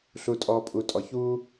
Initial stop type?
ejective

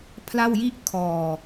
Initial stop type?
aspirated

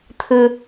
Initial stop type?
aspirated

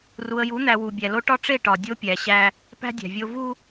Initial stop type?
plain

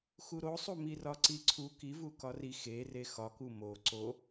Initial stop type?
click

